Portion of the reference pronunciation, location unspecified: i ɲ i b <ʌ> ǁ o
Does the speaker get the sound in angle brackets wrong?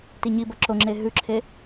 no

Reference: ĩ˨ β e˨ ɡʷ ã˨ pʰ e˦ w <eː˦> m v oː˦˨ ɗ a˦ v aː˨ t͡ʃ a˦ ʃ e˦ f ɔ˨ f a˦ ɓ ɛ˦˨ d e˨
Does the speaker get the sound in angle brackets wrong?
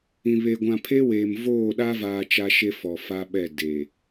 yes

